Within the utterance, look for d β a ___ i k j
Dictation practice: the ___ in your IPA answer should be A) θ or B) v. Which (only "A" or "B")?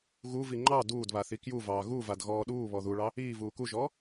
A